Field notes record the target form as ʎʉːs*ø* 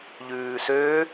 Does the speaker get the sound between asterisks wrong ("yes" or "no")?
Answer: no